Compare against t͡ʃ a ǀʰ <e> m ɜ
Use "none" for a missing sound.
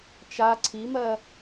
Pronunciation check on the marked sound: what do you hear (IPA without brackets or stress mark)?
i